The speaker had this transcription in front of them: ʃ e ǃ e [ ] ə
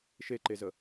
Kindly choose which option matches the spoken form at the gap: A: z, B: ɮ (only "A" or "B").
A